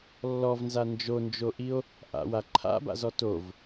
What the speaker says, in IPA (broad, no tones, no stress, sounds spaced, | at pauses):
lː ɔ v n z a n d͡ʒ o n d͡ʒ o ʔ i o̯ | ʔ a̰ w a ǃʰ a̰ b a̰ z ɔ t o v